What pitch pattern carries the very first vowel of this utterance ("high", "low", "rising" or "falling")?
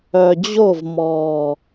low